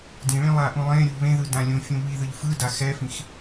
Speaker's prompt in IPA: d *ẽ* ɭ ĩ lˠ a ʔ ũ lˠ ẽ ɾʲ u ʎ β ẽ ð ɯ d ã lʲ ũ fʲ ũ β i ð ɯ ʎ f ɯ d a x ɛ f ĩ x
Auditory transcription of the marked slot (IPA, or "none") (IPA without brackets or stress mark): ĩ